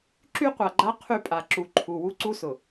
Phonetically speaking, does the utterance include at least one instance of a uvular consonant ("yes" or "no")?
yes